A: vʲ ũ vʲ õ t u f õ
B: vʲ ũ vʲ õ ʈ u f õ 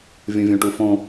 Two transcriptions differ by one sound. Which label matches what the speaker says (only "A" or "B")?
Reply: B